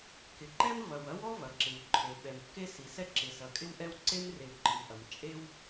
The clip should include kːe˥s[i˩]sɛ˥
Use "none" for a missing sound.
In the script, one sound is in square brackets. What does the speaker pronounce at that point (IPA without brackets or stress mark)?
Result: i˩